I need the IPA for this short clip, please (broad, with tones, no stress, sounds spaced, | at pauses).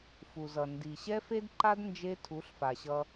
f u˨ z ʌ˨ n d i˨ ɕ ɛ˦ f e˦ d ǃ a˦ d n d͡ʒ e˦ tʰ u˨˦ ɬ f a˨ ɕ ʌ˦